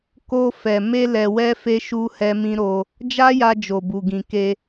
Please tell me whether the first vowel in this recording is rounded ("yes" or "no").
yes